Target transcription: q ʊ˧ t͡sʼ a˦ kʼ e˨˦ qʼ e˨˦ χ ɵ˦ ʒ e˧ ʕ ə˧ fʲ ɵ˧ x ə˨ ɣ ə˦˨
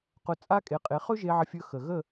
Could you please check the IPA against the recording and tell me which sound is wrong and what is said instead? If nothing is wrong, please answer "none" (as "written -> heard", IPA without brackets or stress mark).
none